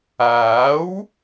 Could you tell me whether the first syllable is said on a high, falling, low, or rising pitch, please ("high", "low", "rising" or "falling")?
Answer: rising